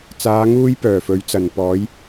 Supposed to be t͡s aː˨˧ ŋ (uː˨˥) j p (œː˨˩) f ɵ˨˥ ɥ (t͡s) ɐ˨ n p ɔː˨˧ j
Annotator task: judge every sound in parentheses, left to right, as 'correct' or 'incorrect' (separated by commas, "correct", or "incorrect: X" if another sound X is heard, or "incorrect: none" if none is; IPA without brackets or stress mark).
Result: incorrect: uː˧, correct, correct